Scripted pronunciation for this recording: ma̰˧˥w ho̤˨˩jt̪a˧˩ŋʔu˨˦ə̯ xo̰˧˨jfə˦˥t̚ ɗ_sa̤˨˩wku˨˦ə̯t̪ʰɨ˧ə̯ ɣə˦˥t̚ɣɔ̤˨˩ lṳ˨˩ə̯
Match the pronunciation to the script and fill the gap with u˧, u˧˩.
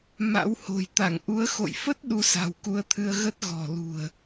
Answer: u˧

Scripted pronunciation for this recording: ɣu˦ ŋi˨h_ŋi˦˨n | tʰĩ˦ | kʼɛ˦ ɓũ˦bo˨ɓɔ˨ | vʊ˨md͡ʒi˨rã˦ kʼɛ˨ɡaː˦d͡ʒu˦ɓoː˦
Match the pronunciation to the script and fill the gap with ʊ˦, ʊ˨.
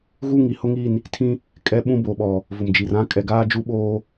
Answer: ʊ˦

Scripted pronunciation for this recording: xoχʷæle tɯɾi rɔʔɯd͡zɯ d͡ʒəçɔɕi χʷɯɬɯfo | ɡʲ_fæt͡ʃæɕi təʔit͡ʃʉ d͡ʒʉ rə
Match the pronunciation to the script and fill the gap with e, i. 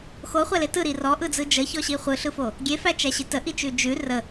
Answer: e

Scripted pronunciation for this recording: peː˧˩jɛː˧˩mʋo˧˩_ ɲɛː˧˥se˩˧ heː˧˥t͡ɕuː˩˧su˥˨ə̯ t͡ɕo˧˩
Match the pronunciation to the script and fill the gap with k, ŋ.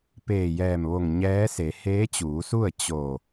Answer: ŋ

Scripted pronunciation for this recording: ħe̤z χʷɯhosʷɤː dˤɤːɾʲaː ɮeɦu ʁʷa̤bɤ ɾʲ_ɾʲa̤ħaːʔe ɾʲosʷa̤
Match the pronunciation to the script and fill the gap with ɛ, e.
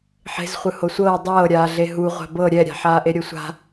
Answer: ɛ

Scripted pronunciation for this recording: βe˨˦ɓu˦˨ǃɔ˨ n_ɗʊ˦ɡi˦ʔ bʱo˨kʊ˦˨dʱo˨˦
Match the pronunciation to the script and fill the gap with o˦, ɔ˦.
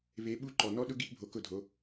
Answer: ɔ˦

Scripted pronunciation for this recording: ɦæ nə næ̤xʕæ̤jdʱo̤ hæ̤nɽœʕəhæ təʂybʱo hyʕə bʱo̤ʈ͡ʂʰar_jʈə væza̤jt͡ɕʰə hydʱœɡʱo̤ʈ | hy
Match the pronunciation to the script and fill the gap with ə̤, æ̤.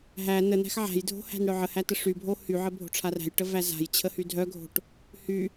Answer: æ̤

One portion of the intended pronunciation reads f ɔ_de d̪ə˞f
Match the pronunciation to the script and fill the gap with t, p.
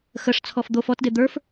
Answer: t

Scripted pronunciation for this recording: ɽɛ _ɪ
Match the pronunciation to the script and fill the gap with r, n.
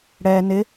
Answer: n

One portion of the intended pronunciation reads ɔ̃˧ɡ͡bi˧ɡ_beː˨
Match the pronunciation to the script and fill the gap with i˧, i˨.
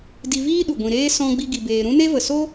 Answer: i˨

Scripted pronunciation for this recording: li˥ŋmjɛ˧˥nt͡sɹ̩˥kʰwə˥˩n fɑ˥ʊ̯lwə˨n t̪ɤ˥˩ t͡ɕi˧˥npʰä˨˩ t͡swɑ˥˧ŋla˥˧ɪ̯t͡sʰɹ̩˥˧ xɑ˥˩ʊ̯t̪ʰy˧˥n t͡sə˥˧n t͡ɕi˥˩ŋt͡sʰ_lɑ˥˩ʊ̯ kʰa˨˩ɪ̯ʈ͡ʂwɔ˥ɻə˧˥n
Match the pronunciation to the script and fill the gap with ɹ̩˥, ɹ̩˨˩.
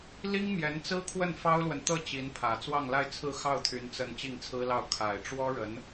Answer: ɹ̩˥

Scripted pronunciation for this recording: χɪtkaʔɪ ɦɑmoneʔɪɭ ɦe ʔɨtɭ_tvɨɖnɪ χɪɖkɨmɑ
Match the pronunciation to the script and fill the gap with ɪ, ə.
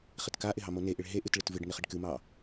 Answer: ɪ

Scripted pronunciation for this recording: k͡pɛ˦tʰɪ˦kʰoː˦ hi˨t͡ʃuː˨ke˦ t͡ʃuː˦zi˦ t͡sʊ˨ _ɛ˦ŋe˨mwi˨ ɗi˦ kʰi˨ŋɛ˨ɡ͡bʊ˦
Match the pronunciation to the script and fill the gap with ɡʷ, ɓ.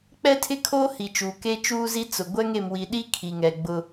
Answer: ɡʷ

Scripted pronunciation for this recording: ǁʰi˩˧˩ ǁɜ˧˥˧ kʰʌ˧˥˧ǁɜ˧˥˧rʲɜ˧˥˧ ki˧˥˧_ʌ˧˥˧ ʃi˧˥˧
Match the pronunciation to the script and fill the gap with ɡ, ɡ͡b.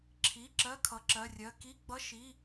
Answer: ɡ͡b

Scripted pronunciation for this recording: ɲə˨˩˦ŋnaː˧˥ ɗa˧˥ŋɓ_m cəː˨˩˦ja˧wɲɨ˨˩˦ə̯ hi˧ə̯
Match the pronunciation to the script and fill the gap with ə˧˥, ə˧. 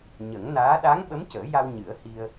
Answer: ə˧˥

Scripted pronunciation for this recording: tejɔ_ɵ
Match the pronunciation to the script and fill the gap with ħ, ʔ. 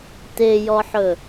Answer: ħ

